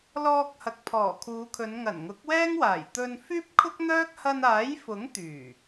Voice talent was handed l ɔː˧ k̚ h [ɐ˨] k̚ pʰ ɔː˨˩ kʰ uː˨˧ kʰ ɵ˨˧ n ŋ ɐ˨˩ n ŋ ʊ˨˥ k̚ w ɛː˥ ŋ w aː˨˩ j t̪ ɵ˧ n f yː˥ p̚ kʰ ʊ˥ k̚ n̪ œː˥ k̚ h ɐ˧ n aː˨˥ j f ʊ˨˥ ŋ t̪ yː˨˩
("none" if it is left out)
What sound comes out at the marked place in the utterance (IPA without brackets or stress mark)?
ɐ˨